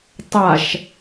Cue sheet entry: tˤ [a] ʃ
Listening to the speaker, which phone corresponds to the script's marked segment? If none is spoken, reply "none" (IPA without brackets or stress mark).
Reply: a